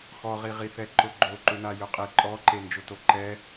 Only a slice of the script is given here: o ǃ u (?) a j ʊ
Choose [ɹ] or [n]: n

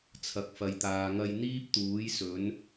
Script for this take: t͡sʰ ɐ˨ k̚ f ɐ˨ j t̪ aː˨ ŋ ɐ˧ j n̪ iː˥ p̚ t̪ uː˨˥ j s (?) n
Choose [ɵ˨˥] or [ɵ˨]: ɵ˨˥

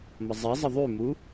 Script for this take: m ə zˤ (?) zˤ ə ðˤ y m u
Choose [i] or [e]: i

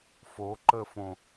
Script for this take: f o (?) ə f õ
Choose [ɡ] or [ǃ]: ǃ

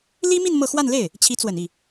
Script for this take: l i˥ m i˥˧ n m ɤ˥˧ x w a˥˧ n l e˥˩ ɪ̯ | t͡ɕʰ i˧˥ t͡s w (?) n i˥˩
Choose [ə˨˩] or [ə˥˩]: ə˨˩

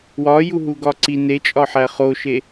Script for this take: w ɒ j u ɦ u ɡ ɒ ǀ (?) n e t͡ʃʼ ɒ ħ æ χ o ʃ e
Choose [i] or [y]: i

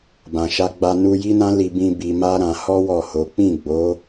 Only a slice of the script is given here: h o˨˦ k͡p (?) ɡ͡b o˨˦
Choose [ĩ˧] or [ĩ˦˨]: ĩ˦˨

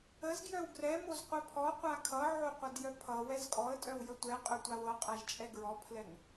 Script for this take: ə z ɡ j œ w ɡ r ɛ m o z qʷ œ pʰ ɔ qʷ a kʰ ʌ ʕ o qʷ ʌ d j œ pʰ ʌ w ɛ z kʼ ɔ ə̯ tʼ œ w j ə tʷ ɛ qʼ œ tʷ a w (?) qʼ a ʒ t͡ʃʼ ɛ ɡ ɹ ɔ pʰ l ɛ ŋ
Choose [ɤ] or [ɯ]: ɤ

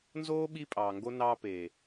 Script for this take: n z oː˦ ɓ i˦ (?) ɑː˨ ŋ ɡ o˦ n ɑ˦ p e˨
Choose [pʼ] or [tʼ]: pʼ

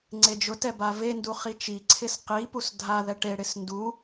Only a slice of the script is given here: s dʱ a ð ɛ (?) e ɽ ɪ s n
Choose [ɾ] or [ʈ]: ʈ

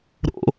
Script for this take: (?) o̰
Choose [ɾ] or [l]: ɾ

